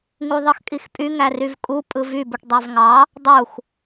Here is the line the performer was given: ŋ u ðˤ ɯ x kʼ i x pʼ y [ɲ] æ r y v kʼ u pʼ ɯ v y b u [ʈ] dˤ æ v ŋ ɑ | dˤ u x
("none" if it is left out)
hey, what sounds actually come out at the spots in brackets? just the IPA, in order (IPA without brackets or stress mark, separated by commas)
ŋ, ʈ